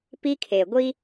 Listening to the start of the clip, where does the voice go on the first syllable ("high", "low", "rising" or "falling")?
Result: high